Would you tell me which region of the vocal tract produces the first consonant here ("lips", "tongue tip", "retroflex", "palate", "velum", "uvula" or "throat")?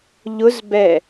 palate